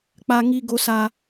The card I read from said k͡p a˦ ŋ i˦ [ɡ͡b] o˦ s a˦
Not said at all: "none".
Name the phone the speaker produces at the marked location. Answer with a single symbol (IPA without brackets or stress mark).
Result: ɡ